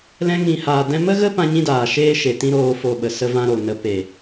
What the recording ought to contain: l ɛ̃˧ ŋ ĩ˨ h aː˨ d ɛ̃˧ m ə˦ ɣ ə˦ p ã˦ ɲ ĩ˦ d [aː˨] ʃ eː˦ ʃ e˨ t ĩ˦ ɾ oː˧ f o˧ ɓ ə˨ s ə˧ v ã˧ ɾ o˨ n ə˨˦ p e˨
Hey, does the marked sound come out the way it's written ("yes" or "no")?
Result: yes